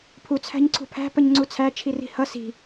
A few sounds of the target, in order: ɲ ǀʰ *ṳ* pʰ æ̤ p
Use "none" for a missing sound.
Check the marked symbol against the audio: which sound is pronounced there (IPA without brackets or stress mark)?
ṳ